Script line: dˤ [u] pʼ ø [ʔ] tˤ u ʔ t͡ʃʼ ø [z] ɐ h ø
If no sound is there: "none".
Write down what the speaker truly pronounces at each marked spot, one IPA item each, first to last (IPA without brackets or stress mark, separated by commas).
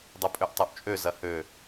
u, ʔ, z